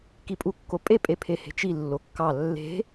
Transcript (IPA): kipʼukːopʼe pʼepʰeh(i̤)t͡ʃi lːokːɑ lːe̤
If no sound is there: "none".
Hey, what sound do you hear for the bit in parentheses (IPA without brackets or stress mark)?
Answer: e̤